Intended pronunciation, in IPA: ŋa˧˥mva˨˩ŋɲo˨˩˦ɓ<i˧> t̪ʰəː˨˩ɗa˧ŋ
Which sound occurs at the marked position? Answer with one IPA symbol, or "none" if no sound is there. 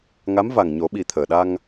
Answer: i˨˩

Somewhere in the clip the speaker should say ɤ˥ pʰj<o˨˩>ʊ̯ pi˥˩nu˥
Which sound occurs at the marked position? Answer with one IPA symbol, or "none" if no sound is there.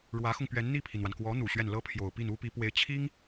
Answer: o˨˩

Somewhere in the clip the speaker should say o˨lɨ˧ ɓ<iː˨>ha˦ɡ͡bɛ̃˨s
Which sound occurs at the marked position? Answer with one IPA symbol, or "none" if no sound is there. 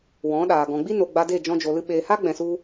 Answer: eː˨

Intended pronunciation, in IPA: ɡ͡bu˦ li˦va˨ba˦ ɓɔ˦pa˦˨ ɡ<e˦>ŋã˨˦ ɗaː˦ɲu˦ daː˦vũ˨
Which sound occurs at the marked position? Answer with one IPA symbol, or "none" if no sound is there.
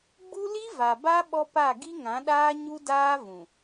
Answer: i˦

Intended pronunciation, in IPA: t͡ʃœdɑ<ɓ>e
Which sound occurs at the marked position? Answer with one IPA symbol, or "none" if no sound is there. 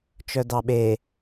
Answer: ɓ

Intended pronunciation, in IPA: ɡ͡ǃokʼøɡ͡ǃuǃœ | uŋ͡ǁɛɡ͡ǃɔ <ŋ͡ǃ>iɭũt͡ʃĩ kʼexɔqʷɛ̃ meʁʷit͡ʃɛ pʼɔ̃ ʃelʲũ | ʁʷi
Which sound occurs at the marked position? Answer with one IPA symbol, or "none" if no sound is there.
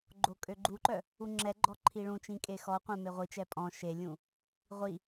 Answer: ǃʰ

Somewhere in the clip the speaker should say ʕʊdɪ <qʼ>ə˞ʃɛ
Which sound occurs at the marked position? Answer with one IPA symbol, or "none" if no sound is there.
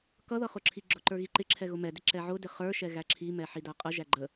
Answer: χ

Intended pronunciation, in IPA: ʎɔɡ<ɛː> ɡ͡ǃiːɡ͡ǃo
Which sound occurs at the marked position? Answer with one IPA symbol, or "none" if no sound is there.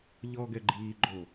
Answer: ɛ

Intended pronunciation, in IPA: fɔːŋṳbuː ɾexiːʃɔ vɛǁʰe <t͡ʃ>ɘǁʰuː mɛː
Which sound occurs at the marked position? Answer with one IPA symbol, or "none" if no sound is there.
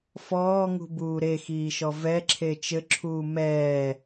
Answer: t͡ʃ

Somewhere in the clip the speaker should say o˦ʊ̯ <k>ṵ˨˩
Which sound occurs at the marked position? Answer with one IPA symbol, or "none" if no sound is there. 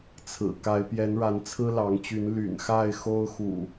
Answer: x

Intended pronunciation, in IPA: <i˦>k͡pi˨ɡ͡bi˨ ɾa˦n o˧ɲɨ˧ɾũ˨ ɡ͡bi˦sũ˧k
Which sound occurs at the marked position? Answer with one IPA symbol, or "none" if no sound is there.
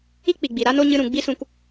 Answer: i˦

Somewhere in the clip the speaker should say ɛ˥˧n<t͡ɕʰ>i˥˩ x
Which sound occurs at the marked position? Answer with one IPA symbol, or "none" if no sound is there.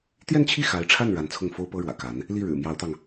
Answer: t͡ɕʰ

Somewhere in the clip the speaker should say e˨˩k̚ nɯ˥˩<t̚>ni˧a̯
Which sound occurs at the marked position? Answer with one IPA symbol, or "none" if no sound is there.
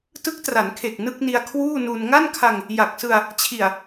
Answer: k̚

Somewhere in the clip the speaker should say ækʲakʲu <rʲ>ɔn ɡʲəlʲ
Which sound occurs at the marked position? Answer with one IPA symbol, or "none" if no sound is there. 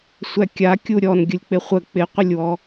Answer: ɾʲ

